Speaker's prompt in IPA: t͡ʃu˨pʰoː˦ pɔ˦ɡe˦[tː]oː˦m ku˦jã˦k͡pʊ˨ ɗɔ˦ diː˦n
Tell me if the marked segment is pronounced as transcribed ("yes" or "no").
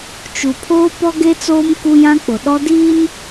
no